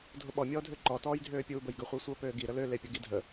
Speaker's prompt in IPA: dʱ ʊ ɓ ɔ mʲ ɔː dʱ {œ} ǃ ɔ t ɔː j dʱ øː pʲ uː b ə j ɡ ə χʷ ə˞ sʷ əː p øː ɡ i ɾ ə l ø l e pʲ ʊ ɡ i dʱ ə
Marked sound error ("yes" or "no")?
yes